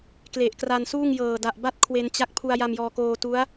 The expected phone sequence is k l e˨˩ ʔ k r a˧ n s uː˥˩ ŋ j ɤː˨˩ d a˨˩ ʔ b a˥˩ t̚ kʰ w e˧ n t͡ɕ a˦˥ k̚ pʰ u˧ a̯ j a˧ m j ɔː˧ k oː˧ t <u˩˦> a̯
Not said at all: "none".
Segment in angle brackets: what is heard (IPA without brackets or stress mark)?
u˦˥